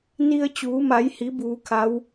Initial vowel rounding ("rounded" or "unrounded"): unrounded